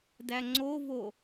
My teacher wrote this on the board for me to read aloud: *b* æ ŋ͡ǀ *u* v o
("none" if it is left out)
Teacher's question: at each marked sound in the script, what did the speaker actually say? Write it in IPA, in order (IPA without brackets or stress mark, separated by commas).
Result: d, o